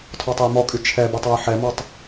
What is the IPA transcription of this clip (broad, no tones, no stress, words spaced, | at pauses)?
tʰɔtˤøjmɔkʼy t͡ʃʰɛbɛtˤ ɔjħɛmɔtˤ